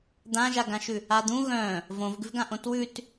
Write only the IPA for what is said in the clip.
d̪ ã ʒ a ɡ ã ʃ ʉ | a d̪ ũ ɣ œ̃ | v õ v ɡ ʉ v ɡ ã ʔ õ t w ʉ t

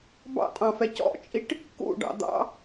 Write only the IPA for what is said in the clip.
b ɑ̰ tʼ ɑ̃ f ɛ c ɔ̰ t͡ʃʼ i ʈ | k ṵ ɖ ɑ̰ d̪ ɑ̰

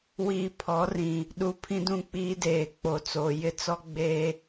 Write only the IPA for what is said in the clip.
w iː˨ pʰ ɔ˨˦ r ĩ˨ | ɗ u˨ pʰ ĩ˦ d ũ˦˨ k͡p iː˦ d eː˨ k͡p o˨ t͡s oː˨ j ɪ˦ t͡s ɔ˦ ɡ͡b eː˦

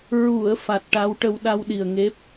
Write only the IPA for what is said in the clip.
ɹ u˨˩˨ ə̯ f a˨˩ t̚ ʈ a˧˥ w ʈ ə˧ w ɗ a˧ w ɗ i˨˩ ə̯ ŋ e˦˥ p̚

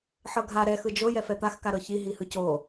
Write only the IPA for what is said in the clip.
ħ ɤ ɡʱ a ɾ ɛ x ɯ d͡ʒ o j ɛ f ɛ t̪ a x k a ɾ ɤ ç i ɦ i h ɯ c o

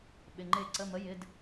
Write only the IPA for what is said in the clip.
ɓ ɪ˩˧˩ ŋ͡ǃ e˦˨ ǀ ə˧˥˧ m ə˧˥˧ j ɪ˧˥˧ d

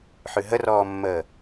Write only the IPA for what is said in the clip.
ħ ʉ ɦ ə r ɔː mː əː

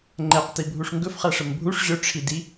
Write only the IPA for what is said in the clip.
ŋ͡ǃ ɛ q t i bʱ u ʂ ŋ ɡ ɵ f χ æ ʂ ə m bʱ u ʂ ʑ ɵ ʈ͡ʂʰ i d i

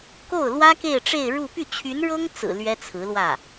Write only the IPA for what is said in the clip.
k o˥˩ ʊ̯ l w ä˥ k e˥˧ ɪ̯ ʈ͡ʂ e˥˧ ɪ̯ ɻ u˥˧ p y˥˩ t͡ɕʰ y˧˥ n ɻ ɤ˥ ŋ t͡s ɹ̩˨˩ l ɥ ɛ˥ t͡sʰ ɹ̩˧˥ l w ä˥˩

